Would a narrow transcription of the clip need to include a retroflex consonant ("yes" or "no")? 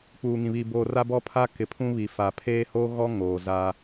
no